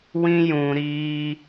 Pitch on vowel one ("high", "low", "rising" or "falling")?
high